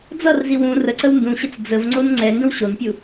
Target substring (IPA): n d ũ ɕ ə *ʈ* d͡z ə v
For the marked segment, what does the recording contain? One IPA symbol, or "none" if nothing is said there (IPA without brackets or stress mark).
t͡s